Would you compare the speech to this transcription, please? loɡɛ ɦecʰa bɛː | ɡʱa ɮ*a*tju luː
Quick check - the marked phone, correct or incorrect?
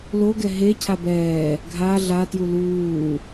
correct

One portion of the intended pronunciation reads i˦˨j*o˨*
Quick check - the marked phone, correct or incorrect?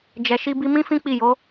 incorrect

